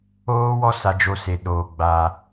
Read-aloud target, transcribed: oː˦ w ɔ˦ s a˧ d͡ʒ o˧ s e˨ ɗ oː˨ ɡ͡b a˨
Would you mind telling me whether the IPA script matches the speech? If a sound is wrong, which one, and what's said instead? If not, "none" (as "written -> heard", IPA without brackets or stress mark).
none